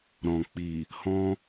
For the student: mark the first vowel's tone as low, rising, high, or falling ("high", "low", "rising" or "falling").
low